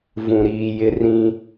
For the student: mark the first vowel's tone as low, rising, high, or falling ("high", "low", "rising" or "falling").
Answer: low